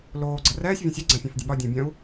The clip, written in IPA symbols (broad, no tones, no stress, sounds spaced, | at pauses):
l oː ɡ͡ǀ ɐ r ɛː sʲ vʲ õ sʲ œ ɡ͡ǀ ã fʲ ã f dʲ ə ɓ ɒ dʲ õ bʲ œ̃ u̯